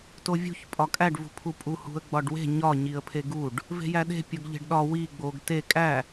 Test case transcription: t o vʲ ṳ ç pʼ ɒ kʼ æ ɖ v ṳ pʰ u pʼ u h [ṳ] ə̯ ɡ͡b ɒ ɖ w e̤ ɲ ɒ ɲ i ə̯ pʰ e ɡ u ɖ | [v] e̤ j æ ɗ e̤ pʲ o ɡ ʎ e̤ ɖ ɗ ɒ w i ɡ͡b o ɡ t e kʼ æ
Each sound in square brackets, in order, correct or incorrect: correct, correct

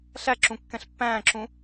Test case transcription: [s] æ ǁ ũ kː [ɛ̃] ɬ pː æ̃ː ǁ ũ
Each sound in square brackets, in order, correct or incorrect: incorrect: ɬ, correct

